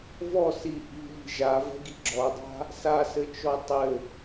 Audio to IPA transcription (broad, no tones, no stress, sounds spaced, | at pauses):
v ɔ s i ʔ i̤ ʎ i̤ ʒ a v ɛ̤ ɡ i ɡ͡ǁ ɔ dˤ a̤ | s a s ɘ t͡ʃ ɔ tˤ ɘ